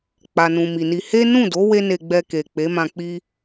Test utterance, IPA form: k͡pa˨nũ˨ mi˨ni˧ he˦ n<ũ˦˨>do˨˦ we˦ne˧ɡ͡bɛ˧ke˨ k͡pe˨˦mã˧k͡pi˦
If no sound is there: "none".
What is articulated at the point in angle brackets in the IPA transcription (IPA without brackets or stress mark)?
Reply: ũ˦˨